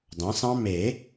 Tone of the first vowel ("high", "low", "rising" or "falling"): rising